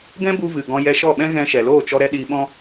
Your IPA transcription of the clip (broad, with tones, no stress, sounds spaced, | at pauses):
ɡ ɛ̃˦ b u˧ v ɨ˨ ɡ ɔ̃˧ j ɛ˧ ʃ ɔ˦˨ ɓ ɛ̃˦ ɣ ɛ̃˧ ʃ ɛ˨ l oː˦˨ t͡ʃ ɔ˧ ɾ ɛ˧ ɗ iː˧ ɓ ɔ̃˦